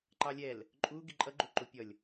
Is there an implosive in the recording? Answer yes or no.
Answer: no